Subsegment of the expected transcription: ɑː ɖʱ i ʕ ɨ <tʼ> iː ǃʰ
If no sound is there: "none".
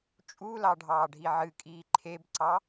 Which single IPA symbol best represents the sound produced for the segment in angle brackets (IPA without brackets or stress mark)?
kʼ